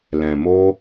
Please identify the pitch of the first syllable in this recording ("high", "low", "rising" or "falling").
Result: low